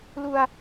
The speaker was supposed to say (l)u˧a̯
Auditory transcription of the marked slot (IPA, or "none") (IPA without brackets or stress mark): l